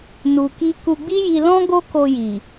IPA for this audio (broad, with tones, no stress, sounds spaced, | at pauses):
n u˧ k i˦ k u˧ ɡ͡b i˦ j i˧ l ɔ̃˦ ɡ o˦ k o˧ j i˨